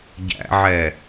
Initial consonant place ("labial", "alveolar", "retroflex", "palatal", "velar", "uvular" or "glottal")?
palatal